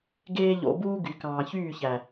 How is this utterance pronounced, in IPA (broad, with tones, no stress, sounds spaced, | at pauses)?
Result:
ɡ eː˦ ʎ o̰˧ b uː˦ ɡ y˨ k ɑ̃ː˨ ç yː˦˨ ç æ˨